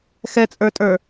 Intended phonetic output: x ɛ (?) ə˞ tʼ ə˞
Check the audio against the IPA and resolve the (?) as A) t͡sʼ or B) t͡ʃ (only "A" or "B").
A